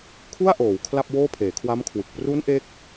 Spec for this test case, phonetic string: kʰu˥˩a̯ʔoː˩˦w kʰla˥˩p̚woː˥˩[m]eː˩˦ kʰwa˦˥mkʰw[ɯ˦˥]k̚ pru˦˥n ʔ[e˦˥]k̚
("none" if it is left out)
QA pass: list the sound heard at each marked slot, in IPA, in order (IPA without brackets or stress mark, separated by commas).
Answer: pʰ, ɯ˨˩, e˦˥